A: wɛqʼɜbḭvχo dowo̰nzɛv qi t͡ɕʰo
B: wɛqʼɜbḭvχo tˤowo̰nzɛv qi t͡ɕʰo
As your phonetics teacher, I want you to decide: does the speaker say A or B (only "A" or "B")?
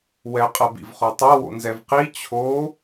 B